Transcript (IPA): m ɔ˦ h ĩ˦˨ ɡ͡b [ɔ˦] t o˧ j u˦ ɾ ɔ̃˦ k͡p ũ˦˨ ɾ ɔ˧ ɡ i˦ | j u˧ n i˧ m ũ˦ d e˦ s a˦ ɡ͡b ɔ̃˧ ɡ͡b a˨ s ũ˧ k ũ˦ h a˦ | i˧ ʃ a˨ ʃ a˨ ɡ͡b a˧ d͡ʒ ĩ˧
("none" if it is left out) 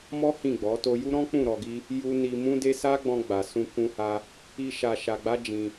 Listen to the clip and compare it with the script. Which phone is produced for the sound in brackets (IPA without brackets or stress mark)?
ɔ˨˦